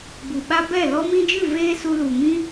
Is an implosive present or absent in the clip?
present